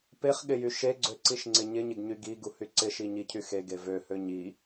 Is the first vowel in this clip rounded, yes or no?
no